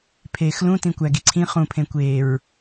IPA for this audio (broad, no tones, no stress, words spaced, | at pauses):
pʰeːxlũ tĩkʷæɡiǀʰĩ χũpʰẽkʷeːɹ